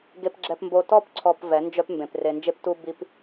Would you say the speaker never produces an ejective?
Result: yes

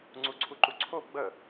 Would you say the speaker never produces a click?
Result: no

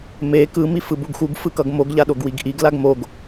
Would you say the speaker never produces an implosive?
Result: no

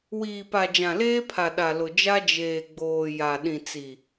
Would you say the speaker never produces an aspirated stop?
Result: no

